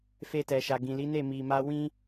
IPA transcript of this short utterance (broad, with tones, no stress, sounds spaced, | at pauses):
f e˧ t ɛ˨ ʃ a˨ ɡ ĩ˨ l i˨˦ n e˦˨ m i˨ m a˧ w ĩ˦